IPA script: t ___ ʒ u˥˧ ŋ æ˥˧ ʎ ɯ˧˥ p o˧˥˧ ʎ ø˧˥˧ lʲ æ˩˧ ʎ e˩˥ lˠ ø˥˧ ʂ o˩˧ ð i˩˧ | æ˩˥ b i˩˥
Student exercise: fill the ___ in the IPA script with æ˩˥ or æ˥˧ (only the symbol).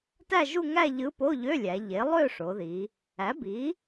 æ˥˧